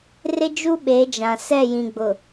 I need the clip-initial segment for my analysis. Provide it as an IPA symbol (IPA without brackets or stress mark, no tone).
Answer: r